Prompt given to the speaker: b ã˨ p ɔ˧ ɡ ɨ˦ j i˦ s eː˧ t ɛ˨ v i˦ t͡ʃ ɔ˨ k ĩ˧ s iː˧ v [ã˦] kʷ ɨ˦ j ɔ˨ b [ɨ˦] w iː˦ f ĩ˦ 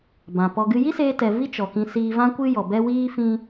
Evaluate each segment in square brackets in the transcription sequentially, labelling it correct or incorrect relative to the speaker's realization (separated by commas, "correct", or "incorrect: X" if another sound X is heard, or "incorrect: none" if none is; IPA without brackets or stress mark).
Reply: correct, incorrect: ɛ˦